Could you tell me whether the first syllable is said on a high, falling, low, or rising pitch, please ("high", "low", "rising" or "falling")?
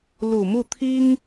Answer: low